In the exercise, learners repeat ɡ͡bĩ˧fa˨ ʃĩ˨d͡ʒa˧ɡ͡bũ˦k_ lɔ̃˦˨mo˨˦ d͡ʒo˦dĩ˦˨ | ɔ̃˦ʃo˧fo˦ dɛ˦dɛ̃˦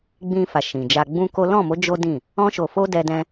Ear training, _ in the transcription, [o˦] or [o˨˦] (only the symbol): o˦